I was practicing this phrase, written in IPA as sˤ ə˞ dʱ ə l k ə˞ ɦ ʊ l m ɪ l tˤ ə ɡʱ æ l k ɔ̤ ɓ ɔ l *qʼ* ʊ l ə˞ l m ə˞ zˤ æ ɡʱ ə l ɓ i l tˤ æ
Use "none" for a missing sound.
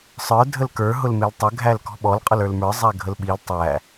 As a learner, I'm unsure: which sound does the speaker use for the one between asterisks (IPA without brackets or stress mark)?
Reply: qʼ